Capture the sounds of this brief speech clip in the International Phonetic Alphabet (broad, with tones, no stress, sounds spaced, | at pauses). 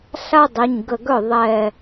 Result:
ɬ a˥ dˤ ɛ˩˧˩ ɲ ɡ ə˧˩ ɡ œ˥˩ ðˤ ɛ˧˩